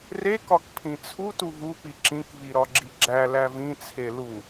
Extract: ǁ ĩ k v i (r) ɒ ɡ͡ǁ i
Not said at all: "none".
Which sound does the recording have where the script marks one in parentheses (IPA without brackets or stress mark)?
ɾ